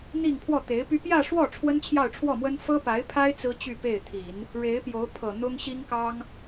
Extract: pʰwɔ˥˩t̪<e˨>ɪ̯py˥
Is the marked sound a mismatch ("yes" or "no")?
yes